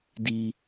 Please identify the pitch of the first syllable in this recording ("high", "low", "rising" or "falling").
high